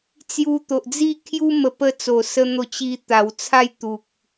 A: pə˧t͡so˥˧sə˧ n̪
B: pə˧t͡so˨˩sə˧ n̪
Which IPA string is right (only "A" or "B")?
B